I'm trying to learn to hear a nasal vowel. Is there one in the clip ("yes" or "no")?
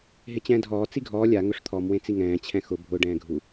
yes